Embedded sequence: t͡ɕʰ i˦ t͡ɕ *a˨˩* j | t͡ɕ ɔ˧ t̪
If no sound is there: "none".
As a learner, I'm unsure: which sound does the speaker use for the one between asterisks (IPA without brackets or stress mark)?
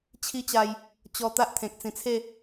a˧